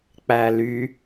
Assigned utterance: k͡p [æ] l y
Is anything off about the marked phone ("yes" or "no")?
no